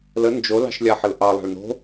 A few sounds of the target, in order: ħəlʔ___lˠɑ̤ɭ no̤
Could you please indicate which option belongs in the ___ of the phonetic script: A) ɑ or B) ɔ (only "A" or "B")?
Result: A